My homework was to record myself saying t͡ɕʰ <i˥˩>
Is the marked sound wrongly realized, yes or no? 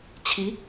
yes